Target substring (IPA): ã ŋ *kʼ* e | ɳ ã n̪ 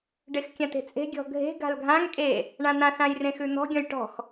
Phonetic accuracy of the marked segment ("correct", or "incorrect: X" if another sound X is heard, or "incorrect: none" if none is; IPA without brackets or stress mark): correct